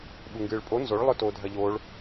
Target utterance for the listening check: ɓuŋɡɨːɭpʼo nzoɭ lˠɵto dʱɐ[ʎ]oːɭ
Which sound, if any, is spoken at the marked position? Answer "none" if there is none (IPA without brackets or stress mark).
ʎ